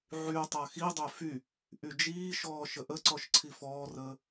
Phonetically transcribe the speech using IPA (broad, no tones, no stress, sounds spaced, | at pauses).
ʕ y tˤ a x i dˤ ø f y | ʔ y d͡ʒ iː ʃ ɔː ʃ ə ʔ ə ǀ ɔ ʃ ǀʰ i f ɔː r əː